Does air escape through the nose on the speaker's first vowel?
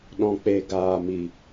yes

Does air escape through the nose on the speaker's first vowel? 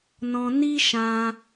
yes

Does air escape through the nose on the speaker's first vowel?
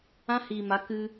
yes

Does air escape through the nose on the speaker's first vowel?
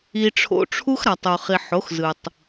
no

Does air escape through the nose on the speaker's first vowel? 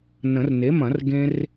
yes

